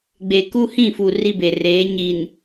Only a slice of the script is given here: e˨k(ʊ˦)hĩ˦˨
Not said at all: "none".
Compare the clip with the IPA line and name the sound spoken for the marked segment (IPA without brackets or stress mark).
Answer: u˦